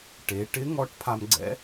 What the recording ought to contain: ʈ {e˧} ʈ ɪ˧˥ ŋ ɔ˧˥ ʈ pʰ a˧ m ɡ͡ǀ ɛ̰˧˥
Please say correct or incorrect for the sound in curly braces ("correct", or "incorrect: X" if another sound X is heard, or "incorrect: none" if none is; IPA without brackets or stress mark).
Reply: incorrect: e˩˧